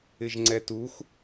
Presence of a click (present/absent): present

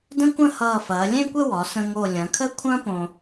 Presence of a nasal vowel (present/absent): present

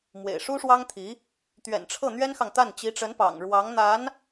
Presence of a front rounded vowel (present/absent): absent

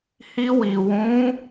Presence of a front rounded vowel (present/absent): absent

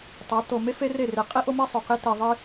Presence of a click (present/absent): absent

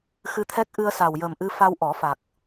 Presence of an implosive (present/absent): absent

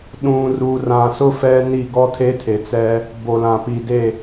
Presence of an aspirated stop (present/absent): present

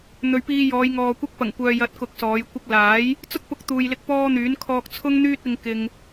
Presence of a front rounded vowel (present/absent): present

